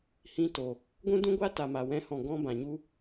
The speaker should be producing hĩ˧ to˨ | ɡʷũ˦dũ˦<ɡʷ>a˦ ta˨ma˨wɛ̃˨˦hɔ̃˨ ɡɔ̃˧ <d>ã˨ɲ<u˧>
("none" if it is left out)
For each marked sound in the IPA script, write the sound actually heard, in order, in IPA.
ɡʷ, b, u˧

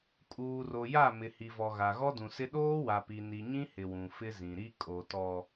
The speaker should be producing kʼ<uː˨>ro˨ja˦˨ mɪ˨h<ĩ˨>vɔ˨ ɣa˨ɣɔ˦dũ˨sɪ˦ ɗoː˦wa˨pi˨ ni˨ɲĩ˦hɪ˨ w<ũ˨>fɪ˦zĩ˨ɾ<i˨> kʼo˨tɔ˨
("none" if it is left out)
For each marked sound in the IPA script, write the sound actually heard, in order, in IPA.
uː˨, i˨, ũ˨, i˦

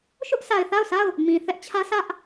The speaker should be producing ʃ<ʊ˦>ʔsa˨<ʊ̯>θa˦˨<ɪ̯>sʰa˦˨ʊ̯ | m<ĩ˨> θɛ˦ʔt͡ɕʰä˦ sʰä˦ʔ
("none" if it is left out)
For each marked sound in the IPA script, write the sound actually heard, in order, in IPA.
ʊ˦, ɪ̯, ʊ̯, ĩ˨

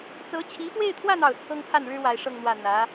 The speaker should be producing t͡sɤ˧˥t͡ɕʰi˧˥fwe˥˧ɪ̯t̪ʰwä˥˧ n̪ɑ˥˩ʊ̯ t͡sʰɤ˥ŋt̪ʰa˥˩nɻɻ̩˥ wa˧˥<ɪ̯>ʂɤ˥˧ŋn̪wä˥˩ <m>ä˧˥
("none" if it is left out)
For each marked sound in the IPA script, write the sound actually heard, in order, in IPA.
ɪ̯, n̪

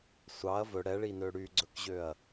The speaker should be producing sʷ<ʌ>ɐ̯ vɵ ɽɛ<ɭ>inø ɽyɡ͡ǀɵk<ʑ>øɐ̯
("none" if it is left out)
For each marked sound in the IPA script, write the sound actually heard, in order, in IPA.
ɑ, ɭ, ʑ

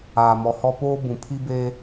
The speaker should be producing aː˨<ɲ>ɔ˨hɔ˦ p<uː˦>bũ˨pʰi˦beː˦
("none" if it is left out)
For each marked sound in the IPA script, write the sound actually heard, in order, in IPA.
m, oː˦

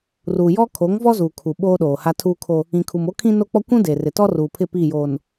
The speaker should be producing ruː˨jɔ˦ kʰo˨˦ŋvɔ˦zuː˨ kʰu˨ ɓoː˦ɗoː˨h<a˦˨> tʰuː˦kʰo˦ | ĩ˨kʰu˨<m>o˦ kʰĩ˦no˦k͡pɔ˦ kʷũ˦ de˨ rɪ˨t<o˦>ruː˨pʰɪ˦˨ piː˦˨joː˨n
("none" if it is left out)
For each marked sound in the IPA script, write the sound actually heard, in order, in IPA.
a˦, m, ɔ˦

